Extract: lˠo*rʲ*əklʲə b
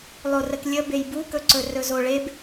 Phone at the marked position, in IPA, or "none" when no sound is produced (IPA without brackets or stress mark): r